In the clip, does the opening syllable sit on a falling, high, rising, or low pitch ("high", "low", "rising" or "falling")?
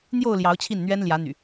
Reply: falling